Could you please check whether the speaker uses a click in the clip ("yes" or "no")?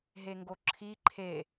yes